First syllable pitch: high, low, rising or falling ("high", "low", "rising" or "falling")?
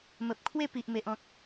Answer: low